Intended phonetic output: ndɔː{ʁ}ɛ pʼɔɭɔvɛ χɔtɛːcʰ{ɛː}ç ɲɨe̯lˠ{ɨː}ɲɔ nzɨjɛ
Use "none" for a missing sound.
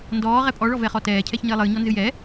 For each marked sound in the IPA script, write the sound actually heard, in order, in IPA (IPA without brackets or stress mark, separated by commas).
ʁ, ɛ, ɨː